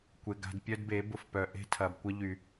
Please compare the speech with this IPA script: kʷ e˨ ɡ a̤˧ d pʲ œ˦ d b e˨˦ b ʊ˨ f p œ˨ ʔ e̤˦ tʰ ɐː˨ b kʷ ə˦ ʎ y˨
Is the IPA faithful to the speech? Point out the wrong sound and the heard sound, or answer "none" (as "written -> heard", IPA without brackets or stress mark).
ə˦ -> ɐ˦